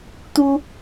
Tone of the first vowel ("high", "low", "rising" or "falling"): high